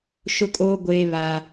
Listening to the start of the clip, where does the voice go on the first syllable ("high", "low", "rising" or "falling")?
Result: high